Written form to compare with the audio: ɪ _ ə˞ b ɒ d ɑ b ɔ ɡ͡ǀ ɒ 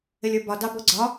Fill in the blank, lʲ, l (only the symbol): lʲ